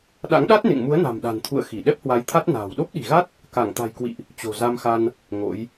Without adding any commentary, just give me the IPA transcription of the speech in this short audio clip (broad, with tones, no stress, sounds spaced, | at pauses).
ɗ a̰˧˥ ŋ ɗ a˦˥ t̚ n ḛ˧˨ ŋ m u˨˦ ə̯ n a̤˨˩ m ɗ a̤˨˩ n t̪ʰ ṵ˧˨ ə̯ x i˧˩ ɗ ɛ˦˥ p̚ h w a˨˦ j t̪ʰ a˦˥ t̚ n a̤ː˨˩ w ɗ o˦˥ p̚ ɗ i̤˨˩ ɣ a˦˥ t̚ | k a˧˩ ŋ t̪ a̤˨˩ j k w ḭ˧˨ ʔ | t͡ɕ o̤˨˩ z a˧ m x a˧ n | ŋ o̰˧˥ j